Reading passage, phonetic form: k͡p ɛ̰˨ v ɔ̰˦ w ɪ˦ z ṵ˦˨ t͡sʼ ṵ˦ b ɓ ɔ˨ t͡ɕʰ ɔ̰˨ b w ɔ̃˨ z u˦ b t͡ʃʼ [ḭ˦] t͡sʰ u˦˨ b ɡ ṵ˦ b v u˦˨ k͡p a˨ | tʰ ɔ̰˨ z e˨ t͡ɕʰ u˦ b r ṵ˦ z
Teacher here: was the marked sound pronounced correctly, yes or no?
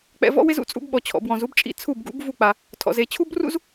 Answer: yes